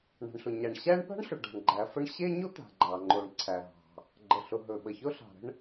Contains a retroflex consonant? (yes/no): yes